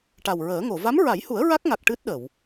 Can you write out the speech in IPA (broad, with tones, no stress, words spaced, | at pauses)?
ʈa˨˩wɹəː˨˩˦ŋo˨˩˨ va˧˥mɹa˨˩˦jhu˨˩˦ə̯ ɹa˦˥k̚ŋa˨˩k̚ ʈɨ˦˥t̚ɗə˨˩˨w